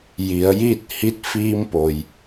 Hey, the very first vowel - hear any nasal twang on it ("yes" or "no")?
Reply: no